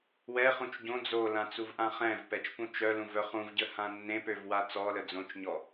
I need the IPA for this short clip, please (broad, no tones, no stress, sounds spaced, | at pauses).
w ɛ χ ũ t͡ʃ ɟ õ d͡z o l ã t͡s u v ʔ ã χ ɛ̃ v p ɛ t͡ʃ p ũ t͡ʃ œ l ũ v œ χ ũ v ɟ ə h ã nː ẽ p ø v w a t͡s ɔ l ə d͡z õ t͡ʃ ɲ ɔ